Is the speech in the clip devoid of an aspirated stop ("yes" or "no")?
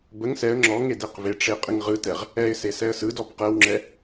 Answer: yes